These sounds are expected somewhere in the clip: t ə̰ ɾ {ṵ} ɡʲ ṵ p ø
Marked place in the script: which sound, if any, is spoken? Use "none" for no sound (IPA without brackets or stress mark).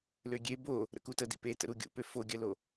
u